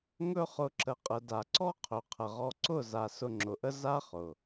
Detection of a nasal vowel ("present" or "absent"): absent